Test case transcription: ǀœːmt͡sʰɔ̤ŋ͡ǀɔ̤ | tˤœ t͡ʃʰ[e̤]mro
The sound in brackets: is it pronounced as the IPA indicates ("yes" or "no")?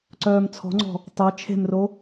yes